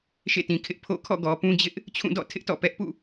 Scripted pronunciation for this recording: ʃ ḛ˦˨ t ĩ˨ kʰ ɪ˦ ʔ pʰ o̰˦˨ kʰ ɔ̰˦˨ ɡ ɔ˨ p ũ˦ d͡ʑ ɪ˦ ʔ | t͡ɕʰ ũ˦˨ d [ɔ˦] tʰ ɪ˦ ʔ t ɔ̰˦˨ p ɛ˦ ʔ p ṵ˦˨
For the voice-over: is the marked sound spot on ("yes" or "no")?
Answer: no